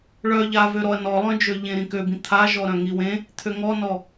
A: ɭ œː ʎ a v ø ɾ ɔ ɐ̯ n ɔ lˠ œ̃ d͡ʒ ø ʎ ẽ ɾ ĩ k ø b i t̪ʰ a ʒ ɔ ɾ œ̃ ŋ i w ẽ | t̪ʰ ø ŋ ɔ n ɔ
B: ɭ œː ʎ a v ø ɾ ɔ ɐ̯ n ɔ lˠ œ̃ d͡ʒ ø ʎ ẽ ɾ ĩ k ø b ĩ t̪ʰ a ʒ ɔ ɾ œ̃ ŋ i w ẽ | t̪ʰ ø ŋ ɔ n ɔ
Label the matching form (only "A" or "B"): B